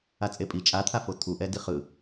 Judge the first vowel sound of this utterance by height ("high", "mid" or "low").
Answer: low